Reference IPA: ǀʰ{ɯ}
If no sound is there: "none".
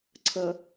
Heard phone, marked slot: ə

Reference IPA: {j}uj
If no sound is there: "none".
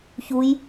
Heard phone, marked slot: ç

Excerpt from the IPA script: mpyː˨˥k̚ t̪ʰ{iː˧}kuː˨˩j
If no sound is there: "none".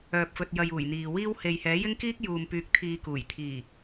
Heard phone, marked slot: iː˧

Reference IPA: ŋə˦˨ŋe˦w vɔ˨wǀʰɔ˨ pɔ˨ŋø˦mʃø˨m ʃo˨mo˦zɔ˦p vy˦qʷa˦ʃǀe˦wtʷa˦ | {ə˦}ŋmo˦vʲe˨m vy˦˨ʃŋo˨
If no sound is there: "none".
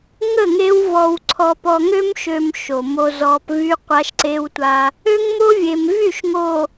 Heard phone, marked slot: ø˦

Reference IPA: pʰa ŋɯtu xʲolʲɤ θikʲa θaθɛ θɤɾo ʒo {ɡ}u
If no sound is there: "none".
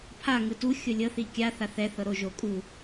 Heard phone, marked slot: kʼ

